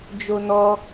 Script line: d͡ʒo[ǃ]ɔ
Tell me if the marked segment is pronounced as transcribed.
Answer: no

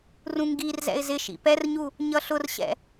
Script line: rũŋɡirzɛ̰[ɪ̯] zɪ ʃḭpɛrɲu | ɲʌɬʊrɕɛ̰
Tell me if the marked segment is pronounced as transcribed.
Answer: yes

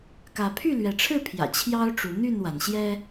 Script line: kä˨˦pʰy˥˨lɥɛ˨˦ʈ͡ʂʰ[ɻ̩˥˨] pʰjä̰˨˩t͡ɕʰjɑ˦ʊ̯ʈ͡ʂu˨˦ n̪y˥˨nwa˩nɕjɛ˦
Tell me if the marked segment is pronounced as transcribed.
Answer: yes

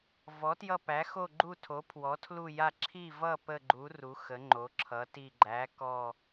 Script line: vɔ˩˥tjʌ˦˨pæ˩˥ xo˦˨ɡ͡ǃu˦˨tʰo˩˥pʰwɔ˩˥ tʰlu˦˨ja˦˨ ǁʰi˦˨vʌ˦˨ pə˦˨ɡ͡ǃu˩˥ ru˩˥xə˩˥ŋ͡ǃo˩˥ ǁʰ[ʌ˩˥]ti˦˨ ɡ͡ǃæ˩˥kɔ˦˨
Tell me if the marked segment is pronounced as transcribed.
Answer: yes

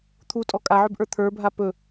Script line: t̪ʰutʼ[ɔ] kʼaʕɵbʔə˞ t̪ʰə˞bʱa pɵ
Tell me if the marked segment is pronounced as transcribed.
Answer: yes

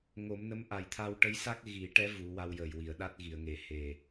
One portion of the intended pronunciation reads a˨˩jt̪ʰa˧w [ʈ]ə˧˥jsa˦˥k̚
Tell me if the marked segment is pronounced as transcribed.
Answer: yes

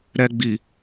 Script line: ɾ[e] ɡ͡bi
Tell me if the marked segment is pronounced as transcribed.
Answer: no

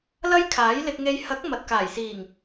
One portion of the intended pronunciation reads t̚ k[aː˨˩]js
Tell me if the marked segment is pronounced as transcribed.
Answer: yes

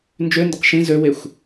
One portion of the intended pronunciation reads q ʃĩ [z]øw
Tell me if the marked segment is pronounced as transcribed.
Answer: yes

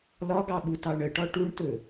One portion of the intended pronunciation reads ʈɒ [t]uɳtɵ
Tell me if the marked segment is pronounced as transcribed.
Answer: no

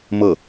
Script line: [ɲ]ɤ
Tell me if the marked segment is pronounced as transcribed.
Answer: no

